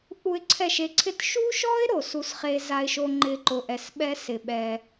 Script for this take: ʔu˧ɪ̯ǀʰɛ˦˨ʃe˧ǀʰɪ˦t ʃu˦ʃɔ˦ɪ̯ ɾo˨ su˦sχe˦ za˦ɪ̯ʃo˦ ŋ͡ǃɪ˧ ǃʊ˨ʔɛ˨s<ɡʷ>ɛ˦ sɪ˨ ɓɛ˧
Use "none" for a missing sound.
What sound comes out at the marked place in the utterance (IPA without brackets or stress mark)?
ɓ